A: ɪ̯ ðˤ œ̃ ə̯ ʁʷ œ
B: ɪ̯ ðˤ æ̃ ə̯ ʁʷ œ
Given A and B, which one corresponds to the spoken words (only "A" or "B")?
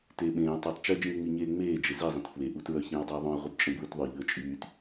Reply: A